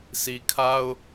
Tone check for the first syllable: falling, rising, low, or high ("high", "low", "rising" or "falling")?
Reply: low